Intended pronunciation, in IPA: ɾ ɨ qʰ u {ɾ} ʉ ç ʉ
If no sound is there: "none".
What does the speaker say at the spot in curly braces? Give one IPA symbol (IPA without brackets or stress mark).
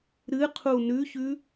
n